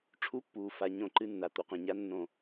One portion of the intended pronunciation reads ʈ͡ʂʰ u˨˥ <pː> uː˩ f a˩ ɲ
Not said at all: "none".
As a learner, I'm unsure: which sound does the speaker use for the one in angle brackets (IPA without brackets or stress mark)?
pː